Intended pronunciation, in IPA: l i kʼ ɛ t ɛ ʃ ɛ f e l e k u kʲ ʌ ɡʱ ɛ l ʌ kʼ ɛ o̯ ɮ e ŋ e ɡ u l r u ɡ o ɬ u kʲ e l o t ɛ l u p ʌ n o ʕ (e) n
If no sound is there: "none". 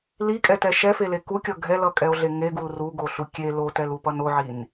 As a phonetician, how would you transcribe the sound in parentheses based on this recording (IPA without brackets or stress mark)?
i